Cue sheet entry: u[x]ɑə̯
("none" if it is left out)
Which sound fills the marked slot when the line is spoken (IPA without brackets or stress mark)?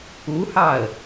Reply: h